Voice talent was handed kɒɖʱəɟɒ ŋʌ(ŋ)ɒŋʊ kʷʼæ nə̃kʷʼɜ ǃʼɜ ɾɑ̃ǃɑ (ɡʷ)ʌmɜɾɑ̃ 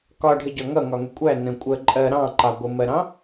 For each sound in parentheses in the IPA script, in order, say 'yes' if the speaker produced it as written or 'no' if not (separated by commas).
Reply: yes, yes